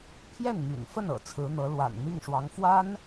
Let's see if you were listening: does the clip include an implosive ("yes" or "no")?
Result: no